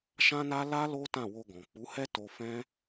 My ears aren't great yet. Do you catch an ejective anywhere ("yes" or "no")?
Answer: no